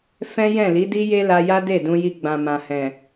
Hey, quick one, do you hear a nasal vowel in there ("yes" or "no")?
yes